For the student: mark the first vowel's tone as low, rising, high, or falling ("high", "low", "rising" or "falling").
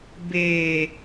low